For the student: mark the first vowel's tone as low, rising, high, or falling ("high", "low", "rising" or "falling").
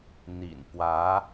low